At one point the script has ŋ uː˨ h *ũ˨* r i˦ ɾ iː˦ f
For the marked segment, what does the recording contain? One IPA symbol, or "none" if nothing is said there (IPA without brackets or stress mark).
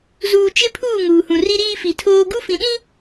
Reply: ũ˨